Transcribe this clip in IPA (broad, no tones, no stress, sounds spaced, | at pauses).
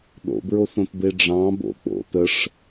ɗ o̰ b ɹ o s õ t b e ɖ͡ʐ ɑ̃ b o̰ k͡p o̰ t ə ʂ